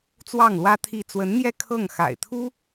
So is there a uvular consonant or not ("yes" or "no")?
no